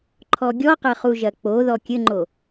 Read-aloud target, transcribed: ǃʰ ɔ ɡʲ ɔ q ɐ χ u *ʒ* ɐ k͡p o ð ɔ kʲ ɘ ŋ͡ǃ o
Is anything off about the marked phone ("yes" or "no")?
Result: no